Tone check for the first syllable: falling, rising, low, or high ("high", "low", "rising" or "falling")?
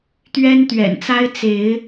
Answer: high